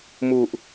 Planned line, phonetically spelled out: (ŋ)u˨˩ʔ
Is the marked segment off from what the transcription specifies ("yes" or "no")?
yes